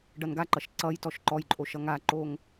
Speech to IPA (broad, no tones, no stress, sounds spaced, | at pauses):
ɖ ʌ n ɡ a ǃ ʌ ʃ ǀ ʌ j t ɔ ʃ ǃ ɔ j ǃʼ o ʃ ʌ ŋ a ǃ o ŋ